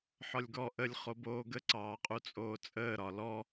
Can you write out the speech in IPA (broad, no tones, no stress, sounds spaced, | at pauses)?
ħ ɒ lʲ ɡ ɔ ʔ ə lʲ χ o b oː ɡ ə ǀ ɑː qʼ u t͡sʼ oː t͡sʼ əː ɾ ɒ l ɔ